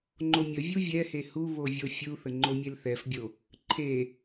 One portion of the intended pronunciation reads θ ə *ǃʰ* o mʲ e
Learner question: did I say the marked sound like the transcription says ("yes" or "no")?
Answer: no